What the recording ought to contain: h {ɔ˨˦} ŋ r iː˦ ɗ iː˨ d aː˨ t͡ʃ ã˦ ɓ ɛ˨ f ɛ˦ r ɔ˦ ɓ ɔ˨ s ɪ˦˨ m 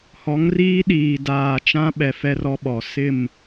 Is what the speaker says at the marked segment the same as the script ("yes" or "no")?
yes